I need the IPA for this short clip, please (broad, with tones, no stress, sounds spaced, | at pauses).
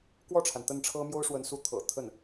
k w ɔ˥˩ ʈ͡ʂʰ a˩ n t̪ ə˥˩ n ʈ͡ʂʰ ɤ˥ m j o˥ ʊ̯ ʂ w ə˧˥ n s u˧˥ t̪ʰ ɤ̰˨˩ t̪ʰ ə˥˩ n